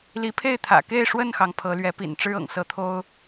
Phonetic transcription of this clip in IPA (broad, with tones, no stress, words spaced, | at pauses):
li˨˦pʰe˥˨ɪ̯ t̪ʰä̰˨˩ ke˥˨ɪ̯ʂwə˥˨nxɑ˩ŋ pʰɤ˨˦lɥɛ˨˦pḭ˨˩n ʈ͡ʂɻ̩˦ɤ̰˨˩ŋsɤ˨˦t̪ʰo˦ʊ̯